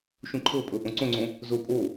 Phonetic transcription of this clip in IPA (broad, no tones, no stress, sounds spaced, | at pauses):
ʃ ũ ǃʰ ɤ pʼ ɤ ʔ õ ǀ õ ŋ͡ǀ õ | z o pʼ o